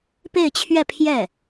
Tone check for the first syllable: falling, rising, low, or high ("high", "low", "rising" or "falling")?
falling